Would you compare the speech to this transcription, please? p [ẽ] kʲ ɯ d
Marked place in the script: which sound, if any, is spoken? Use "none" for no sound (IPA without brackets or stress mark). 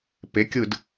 e